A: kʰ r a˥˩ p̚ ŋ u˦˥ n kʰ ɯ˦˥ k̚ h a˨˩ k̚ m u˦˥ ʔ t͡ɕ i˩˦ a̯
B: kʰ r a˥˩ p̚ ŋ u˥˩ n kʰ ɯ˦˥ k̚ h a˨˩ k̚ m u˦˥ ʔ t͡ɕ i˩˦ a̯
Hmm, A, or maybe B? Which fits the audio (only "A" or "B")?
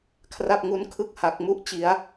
A